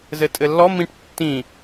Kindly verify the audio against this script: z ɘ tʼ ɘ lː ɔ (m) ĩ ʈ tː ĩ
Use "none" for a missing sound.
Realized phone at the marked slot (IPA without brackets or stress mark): m